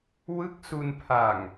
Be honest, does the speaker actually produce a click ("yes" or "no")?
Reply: no